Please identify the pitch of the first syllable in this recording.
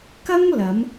high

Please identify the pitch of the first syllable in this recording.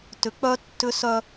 rising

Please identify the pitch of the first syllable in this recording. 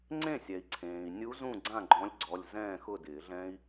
falling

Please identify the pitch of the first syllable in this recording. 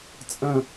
falling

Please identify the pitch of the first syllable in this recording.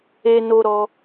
high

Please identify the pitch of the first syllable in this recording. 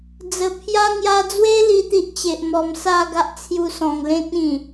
low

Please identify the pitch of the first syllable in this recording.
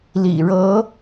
low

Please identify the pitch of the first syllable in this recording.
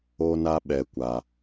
high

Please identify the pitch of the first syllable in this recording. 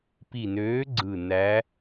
low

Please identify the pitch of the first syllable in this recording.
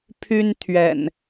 high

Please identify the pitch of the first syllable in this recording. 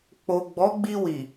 low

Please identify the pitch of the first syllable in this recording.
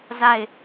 falling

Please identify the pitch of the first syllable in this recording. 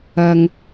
low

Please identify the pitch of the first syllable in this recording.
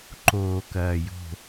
low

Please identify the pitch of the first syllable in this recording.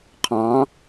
rising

